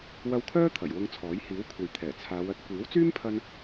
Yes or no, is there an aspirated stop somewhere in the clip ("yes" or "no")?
yes